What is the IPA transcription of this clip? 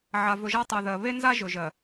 ʕa˨ vɵ˨ʒa˦tˤɜ˨ðɜ˨ βe˦nza˦ ʒɵ˨ʒɜ˨

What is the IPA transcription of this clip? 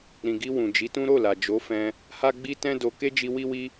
ɾĩ˨ɡi˧ wũ˨d͡ʒi˨˦tũ˦ ɾo˦˨la˨ d͡ʒo˨˦fɛ̃˧ | ha˦ɡ͡bi˦tɛ̃˦ do˧ ke˦d͡ʒi˧ wi˦wi˦

